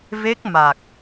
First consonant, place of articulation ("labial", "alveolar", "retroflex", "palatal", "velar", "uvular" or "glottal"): labial